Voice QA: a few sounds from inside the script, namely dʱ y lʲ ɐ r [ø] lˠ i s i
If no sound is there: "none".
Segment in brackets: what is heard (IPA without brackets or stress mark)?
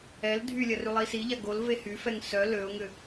y